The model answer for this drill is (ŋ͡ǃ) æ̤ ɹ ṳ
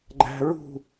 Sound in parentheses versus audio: incorrect: ɡ͡ǃ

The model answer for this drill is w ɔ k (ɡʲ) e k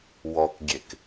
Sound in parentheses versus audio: correct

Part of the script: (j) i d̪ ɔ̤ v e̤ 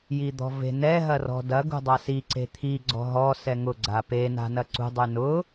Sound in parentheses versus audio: correct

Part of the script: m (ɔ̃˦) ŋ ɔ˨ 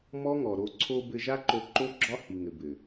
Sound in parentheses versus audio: incorrect: ɔ˦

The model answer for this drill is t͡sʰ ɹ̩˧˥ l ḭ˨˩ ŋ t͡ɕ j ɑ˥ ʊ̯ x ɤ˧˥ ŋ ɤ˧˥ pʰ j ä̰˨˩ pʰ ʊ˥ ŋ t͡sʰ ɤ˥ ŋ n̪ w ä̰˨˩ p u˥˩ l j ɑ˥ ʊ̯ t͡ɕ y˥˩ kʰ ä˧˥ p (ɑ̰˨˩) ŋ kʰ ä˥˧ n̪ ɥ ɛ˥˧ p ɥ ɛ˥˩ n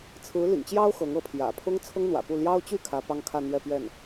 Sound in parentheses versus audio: incorrect: ɑ˥˧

